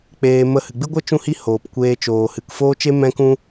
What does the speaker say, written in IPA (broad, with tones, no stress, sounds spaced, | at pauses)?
k͡p eː˧ m ə˦˨ h ɨ˨ ɡ͡b ɨ˦ ɡʷ ə˦ t͡ʃ ũ˦ h i˦ h oː˨ p kʷ eː˧ t͡ʃ oː˨ h ɨ˨ k f oː˦ t͡ʃ e˦ m ɛ̃˦ k ũ˦